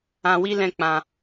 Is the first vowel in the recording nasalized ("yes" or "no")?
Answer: yes